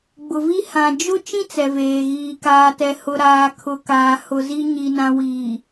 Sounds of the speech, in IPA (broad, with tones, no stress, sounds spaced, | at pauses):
ɡ͡b ʊ˨ v i˦ h ã˨ d͡ʒ ʊ˦ t͡ʃ ĩ˦ t͡s ɛ˨ v eː˨ ɣ iː˨ k aː˨ t ɛ˨ h ʊ˨ ɾ aː˨ kʰ ʊ˨ k aː˨ h ʊ˨ z i˨ ɲ i˨ n ã˨ w iː˨